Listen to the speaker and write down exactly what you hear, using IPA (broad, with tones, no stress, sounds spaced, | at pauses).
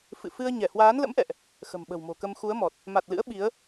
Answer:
f ɨ̰˧˨ f ɨ˧ ə̯ ɲ ɛ˧˩ h w aː˨˦ n l ə̰˧˥ m ʔ ɛ̰˧˨ ʔ | x ə̤˨˩ m ɓ ə̤˨˩ w m o̤˨˩ k ə˧ m x u˨˦ ə̯ m ɔ˨˩ t̚ | m a˨˩ t̚ l ɨ̰˧˥ ə̯ ɓ i˨˦ ə̯